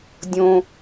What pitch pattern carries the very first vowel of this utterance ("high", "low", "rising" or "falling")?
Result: low